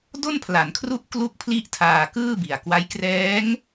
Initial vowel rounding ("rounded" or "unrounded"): rounded